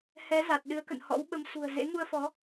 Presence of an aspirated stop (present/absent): absent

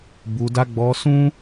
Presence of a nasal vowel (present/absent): present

